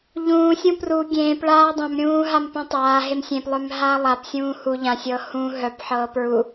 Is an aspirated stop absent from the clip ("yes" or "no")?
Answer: yes